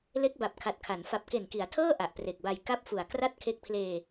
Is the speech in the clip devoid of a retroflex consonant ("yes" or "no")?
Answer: yes